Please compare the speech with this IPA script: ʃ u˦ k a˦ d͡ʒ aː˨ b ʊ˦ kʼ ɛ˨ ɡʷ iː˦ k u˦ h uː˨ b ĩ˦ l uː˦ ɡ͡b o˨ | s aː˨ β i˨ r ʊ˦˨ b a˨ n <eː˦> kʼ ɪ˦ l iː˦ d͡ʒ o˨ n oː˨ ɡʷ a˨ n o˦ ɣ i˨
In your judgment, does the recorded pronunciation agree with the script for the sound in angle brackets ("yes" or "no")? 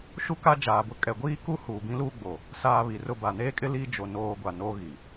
yes